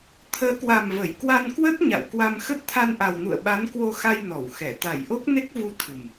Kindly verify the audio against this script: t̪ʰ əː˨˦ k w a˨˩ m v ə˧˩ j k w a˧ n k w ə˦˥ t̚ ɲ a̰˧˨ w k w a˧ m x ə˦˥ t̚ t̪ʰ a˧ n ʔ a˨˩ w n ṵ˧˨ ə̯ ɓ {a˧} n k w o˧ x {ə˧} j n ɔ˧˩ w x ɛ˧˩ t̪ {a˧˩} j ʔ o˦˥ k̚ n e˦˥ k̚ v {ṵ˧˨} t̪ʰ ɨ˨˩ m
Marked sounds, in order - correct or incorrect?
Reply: incorrect: a˨˦, incorrect: a˧, correct, incorrect: u˨˦

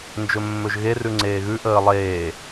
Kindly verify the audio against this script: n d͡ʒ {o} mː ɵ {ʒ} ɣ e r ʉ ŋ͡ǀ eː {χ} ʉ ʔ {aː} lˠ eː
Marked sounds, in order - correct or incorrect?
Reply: incorrect: ɵ, correct, incorrect: ɣ, incorrect: əː

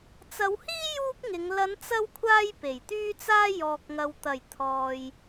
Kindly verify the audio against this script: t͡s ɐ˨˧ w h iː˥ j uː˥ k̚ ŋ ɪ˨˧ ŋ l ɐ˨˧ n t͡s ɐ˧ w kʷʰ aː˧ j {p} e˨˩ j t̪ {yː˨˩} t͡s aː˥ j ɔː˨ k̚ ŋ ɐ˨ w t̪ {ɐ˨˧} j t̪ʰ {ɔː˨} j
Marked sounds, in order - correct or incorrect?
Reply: correct, incorrect: yː˥, incorrect: ɐ˨˩, correct

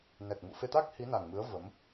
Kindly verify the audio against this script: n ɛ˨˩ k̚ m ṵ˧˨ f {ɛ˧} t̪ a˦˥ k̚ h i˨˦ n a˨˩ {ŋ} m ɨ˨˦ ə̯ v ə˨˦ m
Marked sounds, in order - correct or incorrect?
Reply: incorrect: e˧, correct

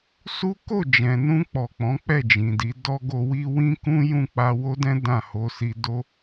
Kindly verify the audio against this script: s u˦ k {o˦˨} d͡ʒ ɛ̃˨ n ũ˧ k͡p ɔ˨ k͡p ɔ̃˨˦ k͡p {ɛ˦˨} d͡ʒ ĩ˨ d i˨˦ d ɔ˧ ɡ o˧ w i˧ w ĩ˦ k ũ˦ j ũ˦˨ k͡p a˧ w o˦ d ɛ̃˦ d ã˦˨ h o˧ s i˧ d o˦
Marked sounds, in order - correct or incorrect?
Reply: correct, correct

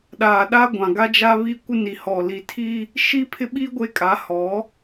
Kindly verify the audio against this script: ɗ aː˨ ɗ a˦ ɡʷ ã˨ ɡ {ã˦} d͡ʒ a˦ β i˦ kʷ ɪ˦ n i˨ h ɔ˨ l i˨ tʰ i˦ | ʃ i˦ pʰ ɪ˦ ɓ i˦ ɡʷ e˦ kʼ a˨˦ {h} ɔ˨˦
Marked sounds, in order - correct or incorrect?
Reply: incorrect: a˦, correct

